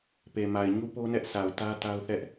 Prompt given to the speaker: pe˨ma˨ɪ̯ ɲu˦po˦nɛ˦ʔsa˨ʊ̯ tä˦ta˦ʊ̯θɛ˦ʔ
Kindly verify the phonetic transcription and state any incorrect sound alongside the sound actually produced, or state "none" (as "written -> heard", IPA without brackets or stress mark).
none